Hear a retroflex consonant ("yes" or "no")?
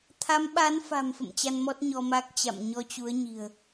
no